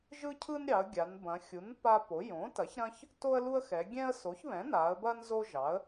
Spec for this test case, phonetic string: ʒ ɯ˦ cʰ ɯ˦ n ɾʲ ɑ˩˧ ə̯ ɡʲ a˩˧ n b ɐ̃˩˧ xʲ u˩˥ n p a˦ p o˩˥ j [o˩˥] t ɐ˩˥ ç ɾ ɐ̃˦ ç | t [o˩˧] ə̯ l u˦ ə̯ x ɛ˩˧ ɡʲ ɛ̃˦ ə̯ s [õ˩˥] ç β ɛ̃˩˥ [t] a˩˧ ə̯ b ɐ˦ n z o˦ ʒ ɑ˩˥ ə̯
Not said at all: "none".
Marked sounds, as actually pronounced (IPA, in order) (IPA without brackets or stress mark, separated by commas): õ˩˥, o˦, o˩˥, n